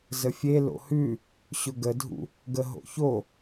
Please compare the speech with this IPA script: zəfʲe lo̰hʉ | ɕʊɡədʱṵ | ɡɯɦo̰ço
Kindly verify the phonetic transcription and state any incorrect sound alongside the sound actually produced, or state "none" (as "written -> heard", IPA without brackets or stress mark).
ɯ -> ə